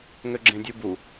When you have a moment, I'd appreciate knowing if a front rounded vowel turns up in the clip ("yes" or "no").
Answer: yes